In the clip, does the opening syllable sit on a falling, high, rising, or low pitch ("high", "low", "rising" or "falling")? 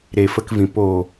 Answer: low